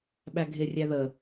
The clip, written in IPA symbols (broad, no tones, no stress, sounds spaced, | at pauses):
ɓ æ ɡʱ ɪ rʲ æ ð ə